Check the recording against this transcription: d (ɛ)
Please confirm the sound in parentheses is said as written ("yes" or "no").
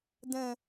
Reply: no